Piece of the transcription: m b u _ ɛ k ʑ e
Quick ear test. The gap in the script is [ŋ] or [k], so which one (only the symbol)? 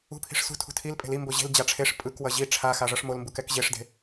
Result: k